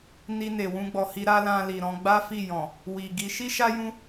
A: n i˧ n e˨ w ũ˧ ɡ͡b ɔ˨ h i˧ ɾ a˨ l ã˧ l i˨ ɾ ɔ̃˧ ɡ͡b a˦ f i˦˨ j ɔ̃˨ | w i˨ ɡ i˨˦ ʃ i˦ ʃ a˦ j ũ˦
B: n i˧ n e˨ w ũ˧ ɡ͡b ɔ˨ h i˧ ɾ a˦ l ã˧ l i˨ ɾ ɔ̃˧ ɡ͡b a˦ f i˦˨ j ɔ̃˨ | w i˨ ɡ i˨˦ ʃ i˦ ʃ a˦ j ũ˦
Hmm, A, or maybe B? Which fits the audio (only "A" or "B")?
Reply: B